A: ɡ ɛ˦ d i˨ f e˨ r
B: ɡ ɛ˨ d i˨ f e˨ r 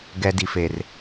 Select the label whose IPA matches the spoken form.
A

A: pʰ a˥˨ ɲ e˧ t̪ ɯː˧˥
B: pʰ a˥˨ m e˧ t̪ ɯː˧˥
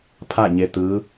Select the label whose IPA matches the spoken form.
A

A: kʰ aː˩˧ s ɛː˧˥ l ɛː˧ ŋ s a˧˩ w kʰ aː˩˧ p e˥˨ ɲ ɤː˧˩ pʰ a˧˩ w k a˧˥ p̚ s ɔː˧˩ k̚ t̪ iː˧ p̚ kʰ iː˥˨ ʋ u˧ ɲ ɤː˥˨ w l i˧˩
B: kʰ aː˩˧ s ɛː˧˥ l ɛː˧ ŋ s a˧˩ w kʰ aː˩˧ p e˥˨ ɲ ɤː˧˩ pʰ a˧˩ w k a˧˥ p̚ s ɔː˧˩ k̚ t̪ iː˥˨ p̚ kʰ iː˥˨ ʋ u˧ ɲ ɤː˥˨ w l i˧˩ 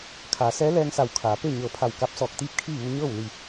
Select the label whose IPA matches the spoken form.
B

